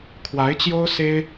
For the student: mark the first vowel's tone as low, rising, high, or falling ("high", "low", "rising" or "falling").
rising